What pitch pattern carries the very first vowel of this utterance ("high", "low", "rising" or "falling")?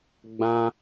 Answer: high